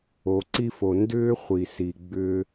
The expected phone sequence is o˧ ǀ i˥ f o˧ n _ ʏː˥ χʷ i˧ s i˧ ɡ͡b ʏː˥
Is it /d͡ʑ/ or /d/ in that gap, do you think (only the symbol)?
d